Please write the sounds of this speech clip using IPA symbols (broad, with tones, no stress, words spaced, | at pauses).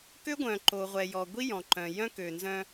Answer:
kø˦ɡʷœ̃˨ ǃo˨ʁʷɛ˨jɔ˨ ɡʷi˦jɔ̃˨ǃœ̃˨jœ̃˦ kø˨nzœ̃˦